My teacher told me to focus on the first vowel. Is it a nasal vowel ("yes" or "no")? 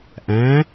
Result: yes